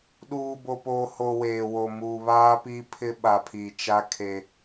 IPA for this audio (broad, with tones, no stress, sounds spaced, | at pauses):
ɗ uː˨ b o˨ p oː˨ h o˨ w eː˨ w o˨ m uː˨ β aː˦ p iː˦ pʰ ɪ˦ ɓ a˨ pʰ i˨ t͡ʃ a˦ kʰ e˦